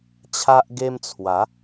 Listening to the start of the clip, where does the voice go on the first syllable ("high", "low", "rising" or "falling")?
high